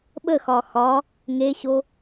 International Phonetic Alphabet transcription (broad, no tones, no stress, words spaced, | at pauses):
ɓəxɒ xɒ | ŋeɕo